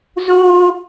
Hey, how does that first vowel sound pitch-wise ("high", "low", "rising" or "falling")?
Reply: high